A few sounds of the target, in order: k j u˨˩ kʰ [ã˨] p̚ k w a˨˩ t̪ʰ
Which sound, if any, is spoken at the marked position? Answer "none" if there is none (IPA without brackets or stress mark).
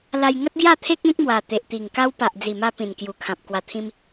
ã˨